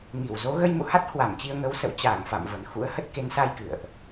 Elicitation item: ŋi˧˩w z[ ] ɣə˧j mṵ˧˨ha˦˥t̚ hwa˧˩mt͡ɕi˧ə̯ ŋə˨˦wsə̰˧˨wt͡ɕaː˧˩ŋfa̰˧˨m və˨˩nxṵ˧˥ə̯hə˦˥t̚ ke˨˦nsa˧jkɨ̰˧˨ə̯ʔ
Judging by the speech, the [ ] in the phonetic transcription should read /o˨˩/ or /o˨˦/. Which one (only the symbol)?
o˨˦